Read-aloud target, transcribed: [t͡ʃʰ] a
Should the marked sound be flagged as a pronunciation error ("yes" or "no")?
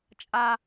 yes